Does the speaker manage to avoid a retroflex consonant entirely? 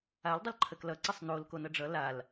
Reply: no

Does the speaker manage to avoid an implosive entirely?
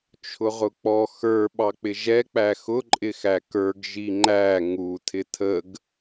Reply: no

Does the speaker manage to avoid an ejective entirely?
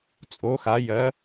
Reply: no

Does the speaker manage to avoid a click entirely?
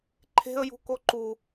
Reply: no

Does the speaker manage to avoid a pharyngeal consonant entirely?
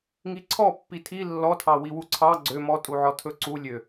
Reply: no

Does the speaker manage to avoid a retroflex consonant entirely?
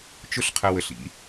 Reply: yes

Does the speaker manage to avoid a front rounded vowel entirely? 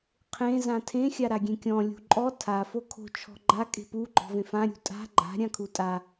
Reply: yes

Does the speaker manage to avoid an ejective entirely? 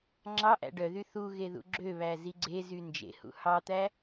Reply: yes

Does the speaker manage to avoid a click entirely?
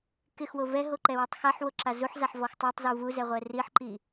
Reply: no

